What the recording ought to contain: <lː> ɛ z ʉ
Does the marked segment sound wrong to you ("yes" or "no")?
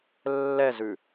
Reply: no